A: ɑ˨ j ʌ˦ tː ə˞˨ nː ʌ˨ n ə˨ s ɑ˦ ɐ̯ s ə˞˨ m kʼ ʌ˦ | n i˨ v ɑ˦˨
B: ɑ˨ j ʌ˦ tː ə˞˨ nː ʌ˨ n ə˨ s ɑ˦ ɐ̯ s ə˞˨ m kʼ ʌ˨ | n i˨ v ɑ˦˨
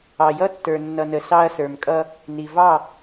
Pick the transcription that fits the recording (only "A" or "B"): A